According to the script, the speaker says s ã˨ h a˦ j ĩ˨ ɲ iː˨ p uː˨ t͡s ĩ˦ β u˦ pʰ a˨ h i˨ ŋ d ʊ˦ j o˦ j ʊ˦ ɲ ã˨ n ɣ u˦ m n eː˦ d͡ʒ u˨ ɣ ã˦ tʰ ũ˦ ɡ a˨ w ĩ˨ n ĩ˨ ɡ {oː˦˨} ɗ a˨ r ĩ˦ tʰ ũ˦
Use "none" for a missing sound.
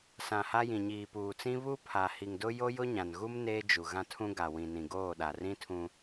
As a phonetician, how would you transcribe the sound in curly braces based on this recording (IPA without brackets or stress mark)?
oː˦˨